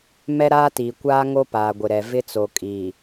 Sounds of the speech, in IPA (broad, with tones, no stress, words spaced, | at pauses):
mɛ˦ ɾaː˦tiː˨kʷaː˦ ŋo˦paː˨ɡʷɪ˨ɾɛ˨ vɪ˦t͡so˨kʼi˨